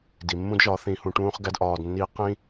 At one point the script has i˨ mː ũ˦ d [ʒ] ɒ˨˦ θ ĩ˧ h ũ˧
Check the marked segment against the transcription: correct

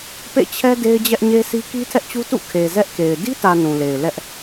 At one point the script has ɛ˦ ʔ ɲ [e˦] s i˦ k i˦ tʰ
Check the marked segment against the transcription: correct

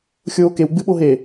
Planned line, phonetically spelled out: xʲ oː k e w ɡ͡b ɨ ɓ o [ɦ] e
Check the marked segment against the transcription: correct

